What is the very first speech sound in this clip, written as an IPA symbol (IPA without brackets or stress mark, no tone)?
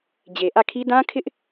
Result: d͡ʑ